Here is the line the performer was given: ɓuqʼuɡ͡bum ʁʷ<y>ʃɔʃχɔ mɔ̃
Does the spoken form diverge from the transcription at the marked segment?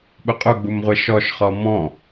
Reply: yes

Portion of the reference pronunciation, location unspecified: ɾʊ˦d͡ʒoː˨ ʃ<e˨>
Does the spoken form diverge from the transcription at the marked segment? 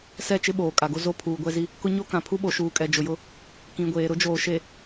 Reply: no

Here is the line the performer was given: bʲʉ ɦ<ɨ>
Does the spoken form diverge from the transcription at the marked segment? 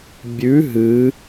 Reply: no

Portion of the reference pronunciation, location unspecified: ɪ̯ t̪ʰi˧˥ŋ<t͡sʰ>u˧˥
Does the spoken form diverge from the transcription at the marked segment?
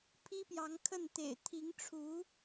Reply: yes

